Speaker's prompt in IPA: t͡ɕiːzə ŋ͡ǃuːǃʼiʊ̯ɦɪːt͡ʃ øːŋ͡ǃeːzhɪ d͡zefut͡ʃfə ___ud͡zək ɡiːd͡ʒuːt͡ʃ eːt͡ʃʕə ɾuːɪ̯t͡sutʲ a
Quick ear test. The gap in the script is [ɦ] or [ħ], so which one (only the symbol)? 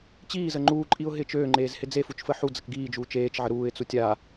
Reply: ħ